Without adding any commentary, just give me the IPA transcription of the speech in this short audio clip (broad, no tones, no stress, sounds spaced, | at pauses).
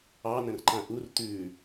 ɑ n ə̃ r ǃ ã ʔ u r t̪ ʉ